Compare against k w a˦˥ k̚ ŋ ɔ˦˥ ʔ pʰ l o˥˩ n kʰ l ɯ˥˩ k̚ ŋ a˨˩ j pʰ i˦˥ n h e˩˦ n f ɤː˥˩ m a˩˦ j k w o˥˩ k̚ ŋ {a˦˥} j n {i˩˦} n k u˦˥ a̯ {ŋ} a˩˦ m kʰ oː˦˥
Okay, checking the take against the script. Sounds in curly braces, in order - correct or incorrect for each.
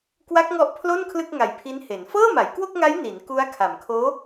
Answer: correct, correct, incorrect

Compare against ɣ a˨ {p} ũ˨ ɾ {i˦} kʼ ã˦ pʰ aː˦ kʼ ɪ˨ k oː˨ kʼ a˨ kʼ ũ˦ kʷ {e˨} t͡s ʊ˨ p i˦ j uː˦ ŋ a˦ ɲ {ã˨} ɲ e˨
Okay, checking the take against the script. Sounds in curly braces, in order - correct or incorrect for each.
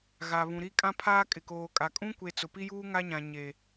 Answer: incorrect, correct, correct, correct

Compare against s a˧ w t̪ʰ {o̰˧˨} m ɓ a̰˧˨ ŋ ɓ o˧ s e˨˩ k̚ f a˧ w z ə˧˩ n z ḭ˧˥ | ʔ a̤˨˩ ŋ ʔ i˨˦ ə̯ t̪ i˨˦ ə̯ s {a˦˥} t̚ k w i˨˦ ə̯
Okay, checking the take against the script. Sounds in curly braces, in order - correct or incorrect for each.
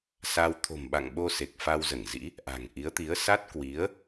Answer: incorrect, correct

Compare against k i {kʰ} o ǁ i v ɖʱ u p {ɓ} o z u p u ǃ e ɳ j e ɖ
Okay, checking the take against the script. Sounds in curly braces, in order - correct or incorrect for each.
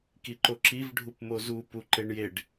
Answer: incorrect, incorrect

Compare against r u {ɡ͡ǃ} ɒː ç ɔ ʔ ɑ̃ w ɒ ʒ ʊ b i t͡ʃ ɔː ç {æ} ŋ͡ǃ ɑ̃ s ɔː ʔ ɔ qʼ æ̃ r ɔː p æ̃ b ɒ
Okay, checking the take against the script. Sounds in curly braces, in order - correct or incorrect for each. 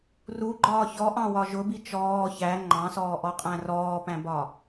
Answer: correct, correct

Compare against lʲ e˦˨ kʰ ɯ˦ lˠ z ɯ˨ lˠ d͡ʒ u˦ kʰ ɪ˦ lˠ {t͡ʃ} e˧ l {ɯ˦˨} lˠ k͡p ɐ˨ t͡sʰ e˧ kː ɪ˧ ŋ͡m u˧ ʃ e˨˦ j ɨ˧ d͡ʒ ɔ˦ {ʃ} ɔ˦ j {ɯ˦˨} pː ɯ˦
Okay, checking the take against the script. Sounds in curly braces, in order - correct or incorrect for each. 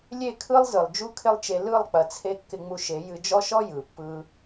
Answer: correct, correct, correct, incorrect

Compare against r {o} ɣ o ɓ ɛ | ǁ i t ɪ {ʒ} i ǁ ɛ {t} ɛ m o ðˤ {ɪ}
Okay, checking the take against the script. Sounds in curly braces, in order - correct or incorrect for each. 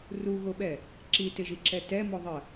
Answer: incorrect, correct, correct, incorrect

